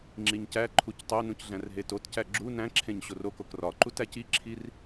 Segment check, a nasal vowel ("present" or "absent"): present